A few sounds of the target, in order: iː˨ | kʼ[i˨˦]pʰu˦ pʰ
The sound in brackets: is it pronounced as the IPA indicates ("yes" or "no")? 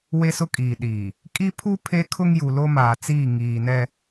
no